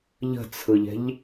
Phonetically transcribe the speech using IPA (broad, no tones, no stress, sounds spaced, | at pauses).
ʎ ə̤ t͡sʰ ɯ ʎ ɛ̤ ʎ